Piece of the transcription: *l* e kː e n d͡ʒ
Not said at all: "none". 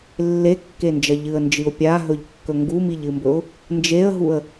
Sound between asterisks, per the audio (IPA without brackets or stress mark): lː